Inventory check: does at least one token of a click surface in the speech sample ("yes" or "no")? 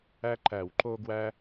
yes